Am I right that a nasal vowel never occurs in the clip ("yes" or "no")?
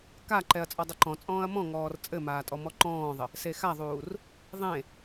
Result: no